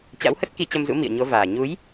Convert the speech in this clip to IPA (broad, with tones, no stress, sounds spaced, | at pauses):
t͡ɕ a̰˧˥ w h ə˦˥ t̚ k i˧ t͡ɕ ə˧ m z ṵ˧˥ m ḭ˧˨ ə̯ ɲ o˨˦ v aː˨˩ ɲ u˨˦ j